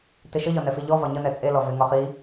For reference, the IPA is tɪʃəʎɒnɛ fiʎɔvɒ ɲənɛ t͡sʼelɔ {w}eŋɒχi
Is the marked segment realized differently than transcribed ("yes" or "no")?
yes